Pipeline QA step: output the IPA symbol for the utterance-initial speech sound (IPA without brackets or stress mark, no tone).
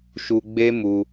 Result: ʃ